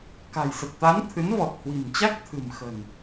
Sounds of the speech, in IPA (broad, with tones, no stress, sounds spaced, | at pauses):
k a̤˨˩ j s ə˨˩ t̚ t̪ a˨˦ n t̪ʰ ɨ˨˦ n v ɔ˨˩ t̚ h w i̤˨˩ m t͡ɕ a˦˥ k̚ t̪ʰ ɨ̤˨˩ m x ə̤˨˩ n